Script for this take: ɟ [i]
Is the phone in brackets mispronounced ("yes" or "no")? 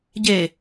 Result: yes